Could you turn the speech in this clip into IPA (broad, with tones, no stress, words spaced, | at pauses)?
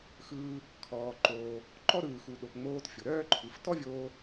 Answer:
xɯː˧ | kʰɔː˩ǃoː˩ | ǃɔ˥ɾɯː˩xu˩ɗo˩p ŋ͡moː˧tfʲo˩ɾœː˥ ǃʰɯ˩ftɔ˥vʲoː˧